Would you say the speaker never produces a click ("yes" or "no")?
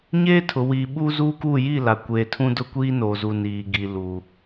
yes